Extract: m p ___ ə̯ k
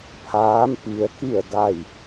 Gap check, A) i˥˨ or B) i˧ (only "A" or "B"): B